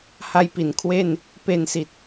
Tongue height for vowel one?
low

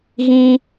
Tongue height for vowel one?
high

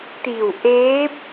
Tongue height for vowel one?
high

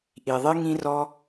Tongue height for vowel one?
high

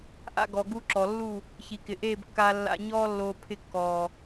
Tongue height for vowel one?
low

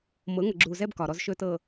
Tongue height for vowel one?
mid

